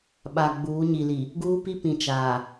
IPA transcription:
ɓ a˨ ɡ͡b uː˨˦ ɲ i˨ l i˨ | ɡ uː˦ p i˦ p ĩ˨ t͡ʃ aː˨

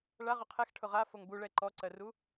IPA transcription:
ɭ a ʁ ʊ qʰ ɛ x ʈʰ ʊ ʁ a f o ŋ b u ɭ ɛ ǃ ɔ ǀ ɜ r u

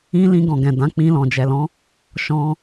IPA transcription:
ĩ˦ l ĩ˧ ɡ ɔ̃˨ ɡ ɛ̃˨ d ã˨˦ k͡p ĩ˧ l ɔ̃˨ d͡ʒ ɛ˨ l ɔ̃˨˦ | ʃ ɔ̃˧

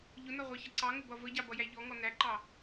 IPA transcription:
ʎ ʊ n ɒ ʁʷ ɑ ç ʌ ǀ ɑ ŋ ʊ b ʌ v ə ɟ ɑ b ʌ j æ ʎ ɔ ŋ ɔ n æ ǃ ɑ

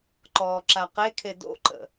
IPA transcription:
ǃ ɔː ǁ a q e kʰ e d o̰ ǃ ə̰

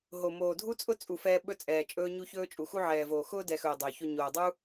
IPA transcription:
ɦ o˨ m oː˨ dʱ u˦ t͡sʼ ʊ˦ t͡sʼ u˨ f ɛː˧ ɓ ɵ˧ t͡sʼ ɛː˨ t͡ʃʼ ɵː˦ ɲ u˦ ç ɵː˦ t͡ʃʼ u˨ x u˧ ʕ ɛː˨ v oː˨ x ʊː˧ d ɛ˨ x ɵː˨ dˤ ɵː˨ ç o˧ ɲ oː˨ dˤ u˦

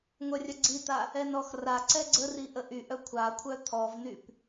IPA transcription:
ŋʷ œ rʲ œ ɡ͡ǀ i t̪ a | ɛ n ɔ x r a ǀ ɛ ɡ͡ǀ ə r i ʔ ə ʔ y ʔ œ kʷʰ a kʷʰ œ t̪ʰ ɔ v n y p

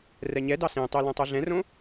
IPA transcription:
r ɛ ɲ ɛ d ɑ s ẽ tˤ y l ũ tˤ u ɮ ɛ̃ r õ

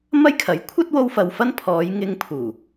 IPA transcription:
m ɐ˥ j kʰ ɐ˨˥ j kʷʰ ɐ˥ t̚ w o˧ w f ɐ˨ w f ɐ˥ n pʰ ɔː˨˧ j ŋ ɪ˧ ŋ pʰ uː˨˩

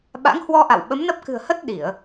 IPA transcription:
ɓ a̰˧˥ ŋ h w ɔ˧ ʔ a̰˧˨ w ɓ ə˨˦ m n ə˦˥ p̚ k ɨ̤˨˩ ə̯ h ə˦˥ t̚ ɗ i˧˩˨ ə̯

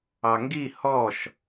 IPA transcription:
ɑ ŋ ɡ i h ɔ ʃ

